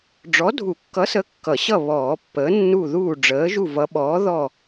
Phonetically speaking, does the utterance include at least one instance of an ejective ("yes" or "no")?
no